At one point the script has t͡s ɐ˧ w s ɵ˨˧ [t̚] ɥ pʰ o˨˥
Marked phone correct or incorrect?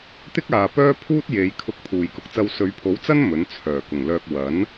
incorrect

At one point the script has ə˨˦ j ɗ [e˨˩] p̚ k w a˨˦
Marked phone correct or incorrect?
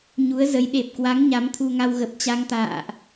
correct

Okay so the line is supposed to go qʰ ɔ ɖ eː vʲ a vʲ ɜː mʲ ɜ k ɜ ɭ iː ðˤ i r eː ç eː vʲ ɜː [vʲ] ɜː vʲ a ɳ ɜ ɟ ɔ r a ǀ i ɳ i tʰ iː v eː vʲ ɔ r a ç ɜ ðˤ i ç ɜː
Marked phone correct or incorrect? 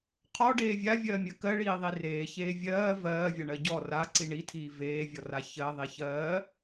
incorrect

